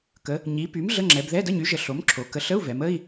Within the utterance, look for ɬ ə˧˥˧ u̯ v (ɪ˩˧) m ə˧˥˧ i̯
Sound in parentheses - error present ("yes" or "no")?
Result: yes